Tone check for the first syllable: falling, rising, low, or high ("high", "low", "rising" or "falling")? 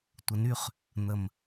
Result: low